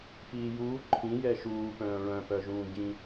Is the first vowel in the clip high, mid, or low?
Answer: high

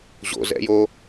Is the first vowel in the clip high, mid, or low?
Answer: mid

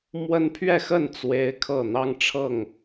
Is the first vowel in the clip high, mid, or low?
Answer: mid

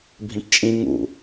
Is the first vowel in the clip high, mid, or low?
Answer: high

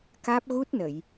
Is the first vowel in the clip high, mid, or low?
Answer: low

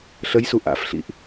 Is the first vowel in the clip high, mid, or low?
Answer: mid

